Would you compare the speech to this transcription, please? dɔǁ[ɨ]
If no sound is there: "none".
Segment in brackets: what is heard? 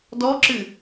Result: ɨ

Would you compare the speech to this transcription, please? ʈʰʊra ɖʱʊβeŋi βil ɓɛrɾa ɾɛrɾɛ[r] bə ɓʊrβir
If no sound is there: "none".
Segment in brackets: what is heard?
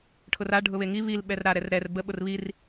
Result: r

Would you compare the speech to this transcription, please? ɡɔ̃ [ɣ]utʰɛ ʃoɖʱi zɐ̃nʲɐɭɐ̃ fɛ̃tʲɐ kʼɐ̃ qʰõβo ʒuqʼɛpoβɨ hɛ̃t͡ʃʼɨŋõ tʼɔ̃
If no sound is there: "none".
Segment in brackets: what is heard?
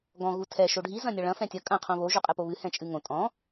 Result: ɣ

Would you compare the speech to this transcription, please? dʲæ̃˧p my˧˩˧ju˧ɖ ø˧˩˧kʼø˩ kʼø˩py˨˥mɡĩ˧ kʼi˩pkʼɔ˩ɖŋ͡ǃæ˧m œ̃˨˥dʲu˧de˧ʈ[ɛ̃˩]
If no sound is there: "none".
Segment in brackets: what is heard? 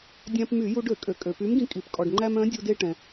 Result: ɛ̃˩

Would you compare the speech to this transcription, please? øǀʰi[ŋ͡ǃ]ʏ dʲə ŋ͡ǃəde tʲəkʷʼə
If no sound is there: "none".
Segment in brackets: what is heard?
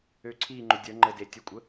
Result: ŋ͡ǃ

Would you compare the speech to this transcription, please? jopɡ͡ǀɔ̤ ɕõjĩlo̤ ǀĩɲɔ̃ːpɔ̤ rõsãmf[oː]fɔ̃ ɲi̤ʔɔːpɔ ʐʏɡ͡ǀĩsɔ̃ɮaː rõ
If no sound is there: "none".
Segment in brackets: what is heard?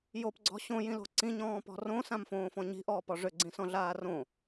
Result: õː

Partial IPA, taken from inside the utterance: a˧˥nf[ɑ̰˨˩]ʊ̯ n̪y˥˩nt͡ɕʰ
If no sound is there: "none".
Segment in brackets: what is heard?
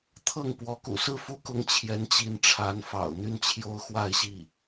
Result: ɑ̰˨˩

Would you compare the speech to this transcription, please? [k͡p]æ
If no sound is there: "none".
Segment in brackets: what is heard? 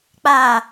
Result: k͡p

